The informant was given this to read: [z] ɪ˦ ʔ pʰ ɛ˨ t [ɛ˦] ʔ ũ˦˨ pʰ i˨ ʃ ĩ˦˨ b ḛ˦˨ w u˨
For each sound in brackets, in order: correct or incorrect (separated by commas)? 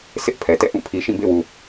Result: incorrect, incorrect